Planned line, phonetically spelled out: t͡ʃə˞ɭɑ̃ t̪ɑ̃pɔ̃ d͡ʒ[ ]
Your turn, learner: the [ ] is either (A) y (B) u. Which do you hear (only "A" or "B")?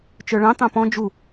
B